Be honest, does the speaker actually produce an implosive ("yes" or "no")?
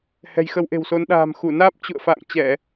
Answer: yes